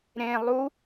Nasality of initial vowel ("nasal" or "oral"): nasal